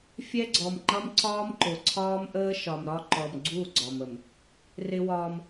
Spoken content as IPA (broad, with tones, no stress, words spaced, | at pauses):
fʲɛ˦ɡ͡ǀɔ˨mŋ͡ǃʌ˦m ǀɒː˦mǃʊ˨ǀʰɒː˦m ʔəː˦ʃɒ˨mɾɒ˦ ǃɔ˨mɡ͡ǀu˦˨ ɡ͡ǀɒ˨mə˨m | rɪ˦wɒː˦m